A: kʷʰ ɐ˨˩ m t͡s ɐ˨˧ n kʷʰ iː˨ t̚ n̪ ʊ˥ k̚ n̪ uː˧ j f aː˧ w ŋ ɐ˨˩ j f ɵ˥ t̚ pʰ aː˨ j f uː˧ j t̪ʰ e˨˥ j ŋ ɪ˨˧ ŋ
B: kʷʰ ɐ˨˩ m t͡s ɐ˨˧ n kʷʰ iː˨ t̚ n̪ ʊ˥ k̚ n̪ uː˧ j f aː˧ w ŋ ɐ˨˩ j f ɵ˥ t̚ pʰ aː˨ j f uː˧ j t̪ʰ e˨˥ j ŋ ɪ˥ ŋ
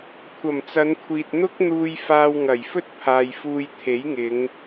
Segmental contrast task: A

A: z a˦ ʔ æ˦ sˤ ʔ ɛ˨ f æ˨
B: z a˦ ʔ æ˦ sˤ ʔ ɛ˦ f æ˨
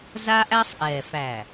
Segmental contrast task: A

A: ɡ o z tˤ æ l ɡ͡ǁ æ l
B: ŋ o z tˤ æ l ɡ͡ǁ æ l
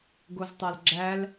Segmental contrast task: A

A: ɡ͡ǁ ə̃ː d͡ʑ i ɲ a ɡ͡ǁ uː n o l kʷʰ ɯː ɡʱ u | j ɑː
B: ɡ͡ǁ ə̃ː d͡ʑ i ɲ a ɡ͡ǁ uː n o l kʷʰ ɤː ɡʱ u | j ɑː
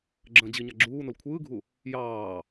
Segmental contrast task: A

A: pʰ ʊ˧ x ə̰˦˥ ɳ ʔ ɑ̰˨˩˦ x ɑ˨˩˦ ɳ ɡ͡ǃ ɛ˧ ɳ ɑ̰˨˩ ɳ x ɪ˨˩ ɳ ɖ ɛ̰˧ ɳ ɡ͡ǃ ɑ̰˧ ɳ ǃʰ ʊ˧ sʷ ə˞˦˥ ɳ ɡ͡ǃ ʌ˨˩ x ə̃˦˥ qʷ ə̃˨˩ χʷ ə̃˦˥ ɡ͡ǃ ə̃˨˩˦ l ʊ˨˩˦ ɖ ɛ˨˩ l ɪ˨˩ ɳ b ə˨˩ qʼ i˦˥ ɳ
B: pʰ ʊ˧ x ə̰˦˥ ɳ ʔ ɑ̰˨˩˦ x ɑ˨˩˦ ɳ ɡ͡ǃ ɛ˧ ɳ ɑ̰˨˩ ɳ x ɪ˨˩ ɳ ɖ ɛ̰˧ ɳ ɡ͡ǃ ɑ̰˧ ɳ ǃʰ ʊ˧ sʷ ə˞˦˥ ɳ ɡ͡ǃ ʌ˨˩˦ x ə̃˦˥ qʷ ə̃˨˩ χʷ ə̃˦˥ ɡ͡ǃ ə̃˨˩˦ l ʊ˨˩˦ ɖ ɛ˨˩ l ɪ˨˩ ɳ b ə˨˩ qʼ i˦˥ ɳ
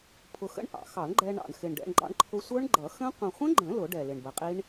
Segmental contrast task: B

